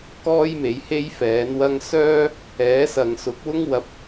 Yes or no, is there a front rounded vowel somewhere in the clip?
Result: yes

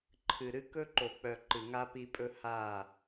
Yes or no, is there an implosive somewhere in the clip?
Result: no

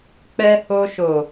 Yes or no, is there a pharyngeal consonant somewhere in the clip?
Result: no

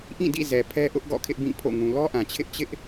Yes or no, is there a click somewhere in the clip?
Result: no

